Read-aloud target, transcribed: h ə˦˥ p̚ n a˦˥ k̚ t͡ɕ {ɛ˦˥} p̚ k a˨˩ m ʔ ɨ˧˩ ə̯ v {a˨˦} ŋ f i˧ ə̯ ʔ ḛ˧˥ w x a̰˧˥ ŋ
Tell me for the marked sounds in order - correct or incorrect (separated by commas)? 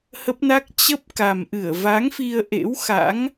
incorrect, correct